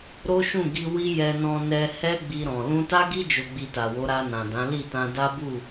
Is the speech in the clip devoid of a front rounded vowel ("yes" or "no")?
yes